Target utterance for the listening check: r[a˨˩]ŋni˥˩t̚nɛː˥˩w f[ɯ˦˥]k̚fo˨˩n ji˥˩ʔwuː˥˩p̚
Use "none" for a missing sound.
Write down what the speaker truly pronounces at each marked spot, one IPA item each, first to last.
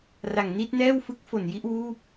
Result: a˨˩, ɯ˦˥

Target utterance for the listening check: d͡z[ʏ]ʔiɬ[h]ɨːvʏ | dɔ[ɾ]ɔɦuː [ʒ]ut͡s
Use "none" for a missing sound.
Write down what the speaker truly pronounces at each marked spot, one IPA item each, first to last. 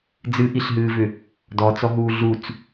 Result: ɨ, ɦ, t͡s, ɮ

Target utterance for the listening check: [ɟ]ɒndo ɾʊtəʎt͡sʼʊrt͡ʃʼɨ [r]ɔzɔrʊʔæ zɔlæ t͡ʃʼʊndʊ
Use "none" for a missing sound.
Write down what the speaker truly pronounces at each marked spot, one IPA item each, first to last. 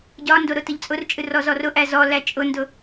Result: ɟ, r

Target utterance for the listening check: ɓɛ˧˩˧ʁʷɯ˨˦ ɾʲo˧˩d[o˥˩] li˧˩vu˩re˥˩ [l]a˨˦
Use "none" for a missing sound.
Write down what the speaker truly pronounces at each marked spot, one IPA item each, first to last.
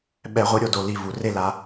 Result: o˩, l

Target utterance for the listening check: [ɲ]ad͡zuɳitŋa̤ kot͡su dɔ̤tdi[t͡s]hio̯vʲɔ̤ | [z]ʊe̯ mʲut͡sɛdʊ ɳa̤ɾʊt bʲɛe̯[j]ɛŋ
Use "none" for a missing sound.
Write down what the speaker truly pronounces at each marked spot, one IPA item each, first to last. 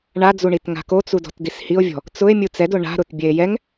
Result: ɳ, s, t͡s, j

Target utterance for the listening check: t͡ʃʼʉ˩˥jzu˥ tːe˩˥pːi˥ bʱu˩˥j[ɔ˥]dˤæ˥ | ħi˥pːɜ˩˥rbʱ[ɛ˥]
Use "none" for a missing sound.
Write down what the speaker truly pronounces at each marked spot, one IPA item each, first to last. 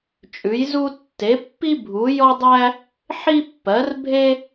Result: ɔ˥, e˥

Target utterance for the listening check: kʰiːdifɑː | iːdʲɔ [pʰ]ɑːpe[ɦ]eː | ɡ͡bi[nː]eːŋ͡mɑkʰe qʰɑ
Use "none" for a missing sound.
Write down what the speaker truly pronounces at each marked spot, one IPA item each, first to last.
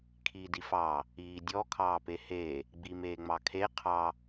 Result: kʰ, h, m

